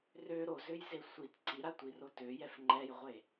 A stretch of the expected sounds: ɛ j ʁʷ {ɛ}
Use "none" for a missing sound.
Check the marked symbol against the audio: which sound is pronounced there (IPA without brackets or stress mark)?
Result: e